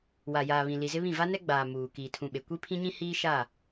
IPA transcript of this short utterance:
w a˨ j aː˨ β ĩ˨ l i˨ z ɪ˦ β ĩ˦˨ v a˦ n ɛ˦ ɡ͡b aː˨ m uː˨ k iː˨ tʰ ũ˨ ɓ e˨ kʷ i˦ pʰ ĩ˦ ɲ ĩ˦ h iː˦ ʃ a˦˨

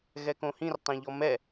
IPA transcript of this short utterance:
ɣ ɛ k õ h ĩ r tˤ ẽ ʎ ɔ m ɛ

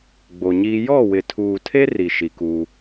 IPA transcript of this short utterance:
ɡ͡b o˨ ɲ iː˦ j ɔ˦˨ w ɪ˨ tʰ uː˨ tʰ e˦ r i˨ ʃ i˨ k uː˦

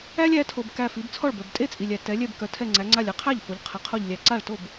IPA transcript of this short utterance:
æ˦ lʲ æ˩˧ tʰ o˩ b k æ˧˩ f i˩˧ b t͡sʰ ɔ˥˩ ɭ b œ˩ b tʼ e˥˩ t͡sʼ i˩ lʲ æ˩ t ɛ˩˧ lʲ ɛ˧˩ b k œ˩˧ tʰ ɛ˧˩ ŋ͡ǀ æ˩˧ ŋ͡ǀ a˧˩ lʲ ɛ˧˩ qʰ æ˥˩ ʎ f o˩˧ ʎ qʰ ɛ˩˧ qʰ o˧˩ ʎ lʲ æ˩ ǀ a˥˩ ɭ t o˥˩ b

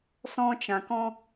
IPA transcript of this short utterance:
s ɔ̃˦ t͡ʃ ã˧ k ɔ̃˦

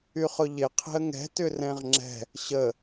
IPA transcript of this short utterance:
y χ ʊ ʎ ɪ qʰ e̤ ə̯ ŋ ɛ̤ t ʏ r ɛ̃ ʁ ŋ͡ǁ ɛ̤ | ɕ ə

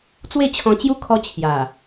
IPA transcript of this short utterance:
t͡s w e˥˧ t͡ɕʰ ɔ̃˧ t͡ɕ j u˦ kʰ ɔ˦ t͡ɕʰ j a˨˩

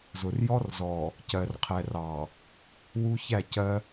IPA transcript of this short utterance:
z ʊ˨ r j ɔ˦ r z ɔ˨ | c ɜ˨ r qʰ ɛ˨ r ɑ˨ | w u˦ ç æ˦˨ c ɜ˦

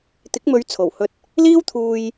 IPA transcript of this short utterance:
t̪ ɪ˨˥ k̚ m ɵ˨˧ ɥ t͡sʰ o˨˩ w h ɵ˧ t̚ | l iː˥ w t̪ʰ uː˧ j

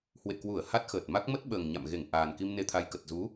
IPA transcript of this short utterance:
h w ḛ˧˨ k w u˧˩ ə̯ h a˦˥ t̚ x əː˨˩ t̚ m a˦˥ k̚ m ə˦˥ t̚ ɓ əː˨˩ ŋ ɲ a̰˧˨ m ɣ e˧˩ ŋ ʔ aː˨˩ n k i˧ m n e˧ t̪ʰ a˧ j k ə˨˩ t̚ z u˨˦

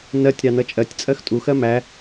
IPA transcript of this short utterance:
n ɜ tʲ ɾ ɑ n ʌ t͡ʃʼ ɜ tʲ t͡sʼ ɜ x tʼ u x ɜ m æ

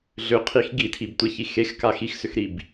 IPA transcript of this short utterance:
ɮ ʏ qʰ i x ɡ i tʰ i b tʷ e ç i x e x k a x i x s ʏ x ɾ i b

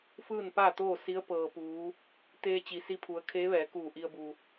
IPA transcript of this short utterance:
f ɯː˥˨ n p aː˥˨ t̪ oː˥˨ s i˧˥ ə̯ p ɤː˩ p uː˩˧ | t̪ eː˧ t͡ɕ i˩ s i˧ pʰ u˩˧ ə̯ kʰ eː˧˥ ʋ ɛː˩˧ k uː˧˩ ʔ i˧ ə̯ b u˩

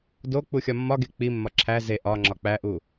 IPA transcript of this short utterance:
d o k͡p u xʲ ɒ mː ɒ ɡ e k͡p i mː ɒ ǁʰ æ z e ʔ ɒ ŋ͡ǁ ɒ k͡p æ ʔ u

